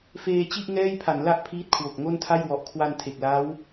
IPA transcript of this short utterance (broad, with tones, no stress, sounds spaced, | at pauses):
f eː˧ t͡ɕ i˥˩ ʔ ŋ ɛː˥˩ j pʰ a˩˦ n l a˥˩ ʔ pʰ iː˦˥ t̚ kʰ w o˨˩ k̚ ŋ o˥˩ n tʰ a˥˩ j w ɔ˨˩ ʔ kʰ w a˧ n tʰ e˨˩ k̚ l a˦˥ w